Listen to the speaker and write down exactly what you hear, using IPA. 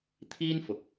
t̪ʰ iː˥ n f ʊ˨ k̚

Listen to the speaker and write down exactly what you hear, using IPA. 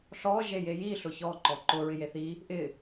ɬ ɔ ʒ e j e j i ɬ ʊ ç ɔ ǃ ɔ ǃ ʊ ɹ ɪ j e θ i | ʔ ɪ

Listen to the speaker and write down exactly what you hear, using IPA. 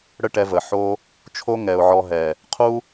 ɽ ə˦ ʈ ɛ˧ v ə˨ ħ o˧ | t͡ʃʰ o˦ ŋ ɛ˨ ʊ̯ ʕ ɔ˧ ɦ ɛ˨ | qʰ u˦

